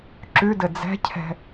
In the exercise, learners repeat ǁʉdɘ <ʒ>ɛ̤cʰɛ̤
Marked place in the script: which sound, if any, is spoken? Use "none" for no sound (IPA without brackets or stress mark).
d͡z